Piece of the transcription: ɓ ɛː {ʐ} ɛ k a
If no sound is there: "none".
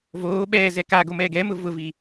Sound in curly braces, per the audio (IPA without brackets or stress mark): z